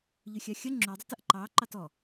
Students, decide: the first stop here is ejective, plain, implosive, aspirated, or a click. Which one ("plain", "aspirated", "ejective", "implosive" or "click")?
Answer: click